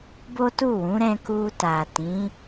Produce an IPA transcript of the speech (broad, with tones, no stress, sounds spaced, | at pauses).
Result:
b o˦ t u˦˨ w ũ˨˦ ɾ ɛ̃˦ k u˧ t a˨ t ĩ˨˦